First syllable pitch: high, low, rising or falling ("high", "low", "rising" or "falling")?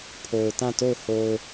low